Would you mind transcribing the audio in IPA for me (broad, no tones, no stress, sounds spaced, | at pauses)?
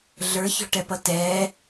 ɮ ə˞ ç ɔ̤ ʈ ɛ p ʌ t ɛː